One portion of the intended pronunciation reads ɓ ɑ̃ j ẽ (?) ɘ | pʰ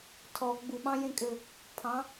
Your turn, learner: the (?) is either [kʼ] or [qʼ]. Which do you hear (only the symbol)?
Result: kʼ